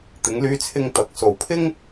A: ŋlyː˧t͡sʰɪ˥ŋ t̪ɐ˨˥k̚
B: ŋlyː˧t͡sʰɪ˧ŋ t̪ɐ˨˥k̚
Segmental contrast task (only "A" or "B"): B